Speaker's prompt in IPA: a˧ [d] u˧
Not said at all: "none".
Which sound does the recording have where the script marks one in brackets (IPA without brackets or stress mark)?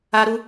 ɾ